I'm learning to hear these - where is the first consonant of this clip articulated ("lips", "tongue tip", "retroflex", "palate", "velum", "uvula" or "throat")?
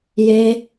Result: palate